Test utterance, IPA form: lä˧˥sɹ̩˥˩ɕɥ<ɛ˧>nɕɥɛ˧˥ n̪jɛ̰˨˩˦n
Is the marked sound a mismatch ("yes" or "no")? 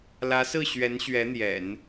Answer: yes